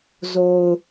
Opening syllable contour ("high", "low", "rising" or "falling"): low